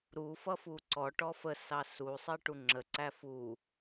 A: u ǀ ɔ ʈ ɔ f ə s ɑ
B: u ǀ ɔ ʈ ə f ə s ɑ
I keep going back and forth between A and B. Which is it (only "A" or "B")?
A